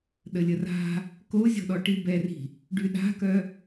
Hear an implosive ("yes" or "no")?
yes